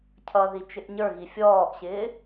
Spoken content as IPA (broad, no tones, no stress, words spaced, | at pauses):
cʰʌði t͡ʃɪʔɲə˞ɣi fʲɔːʔɕɪː